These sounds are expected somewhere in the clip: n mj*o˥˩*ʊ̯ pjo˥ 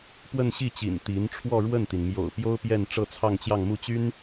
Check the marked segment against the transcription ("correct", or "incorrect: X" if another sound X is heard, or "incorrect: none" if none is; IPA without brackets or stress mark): incorrect: o̰˨˩